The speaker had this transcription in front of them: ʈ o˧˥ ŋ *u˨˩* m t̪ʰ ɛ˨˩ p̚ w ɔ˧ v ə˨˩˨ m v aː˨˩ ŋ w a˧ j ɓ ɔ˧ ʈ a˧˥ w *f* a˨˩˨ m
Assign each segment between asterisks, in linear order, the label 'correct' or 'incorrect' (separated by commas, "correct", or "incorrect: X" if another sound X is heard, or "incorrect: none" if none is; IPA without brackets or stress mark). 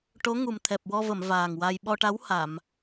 correct, incorrect: h